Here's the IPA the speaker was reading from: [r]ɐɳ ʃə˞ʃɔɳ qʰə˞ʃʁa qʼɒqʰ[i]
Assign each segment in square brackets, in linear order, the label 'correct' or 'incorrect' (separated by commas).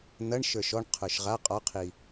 incorrect, correct